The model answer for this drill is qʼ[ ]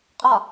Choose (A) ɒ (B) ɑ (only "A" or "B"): A